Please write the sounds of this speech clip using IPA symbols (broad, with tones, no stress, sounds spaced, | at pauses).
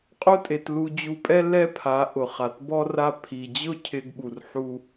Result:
qʼ o˦ tʼ e˧ t l u˧ d͡ʑ u˧ pʼ ɛ˦ l ɛ˦ pʰ a˨˦ ʔ ʊ˨ χ a˨ t b ɔ˧ r a˧ pʰ i˨ d͡ʑ ʊ˦ cʰ ɪ˧ ɡ ɓ u˧ r ħ u˦